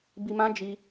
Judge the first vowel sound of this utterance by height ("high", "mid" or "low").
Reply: high